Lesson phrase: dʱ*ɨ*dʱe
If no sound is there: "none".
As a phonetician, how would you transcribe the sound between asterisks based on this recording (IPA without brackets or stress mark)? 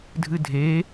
ɨ